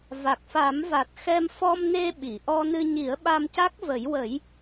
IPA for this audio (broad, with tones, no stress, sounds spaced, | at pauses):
v a˨˩ k̚ f a˨˩˦ m v a˨˩ t̚ x ɛ˧ m f ɔ˧ m n e˧ ɓ i˨˩˨ ʔ ɔ˧ n ɨ˧ ɲ i˨˩˦ ə̯ ɓ a˧ m c a˦˥ k̚ v ə˨˩˦ j w ə˨˩˦ j